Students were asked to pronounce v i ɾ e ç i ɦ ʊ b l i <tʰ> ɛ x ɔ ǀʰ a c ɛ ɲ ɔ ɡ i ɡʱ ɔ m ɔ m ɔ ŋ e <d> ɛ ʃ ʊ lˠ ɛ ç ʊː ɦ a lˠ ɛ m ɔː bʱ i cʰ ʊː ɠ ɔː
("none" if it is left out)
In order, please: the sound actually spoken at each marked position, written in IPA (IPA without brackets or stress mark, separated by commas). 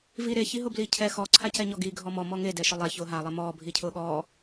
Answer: cʰ, d